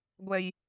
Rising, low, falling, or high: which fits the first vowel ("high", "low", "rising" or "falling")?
low